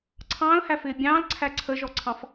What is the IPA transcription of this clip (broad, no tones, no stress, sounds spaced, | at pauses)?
ǀʰ ɑ̃ː ə̯ h æ f ɪː bʲ ɑ̃ː l ǀʰ æ ǀʰ ə ʒ ɔ ǀʰ ɑ̃ f